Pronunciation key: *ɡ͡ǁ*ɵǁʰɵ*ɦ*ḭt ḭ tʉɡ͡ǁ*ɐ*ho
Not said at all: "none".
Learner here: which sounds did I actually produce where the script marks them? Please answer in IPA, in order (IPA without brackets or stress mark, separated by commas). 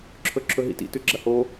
ǁʰ, ɦ, ɐ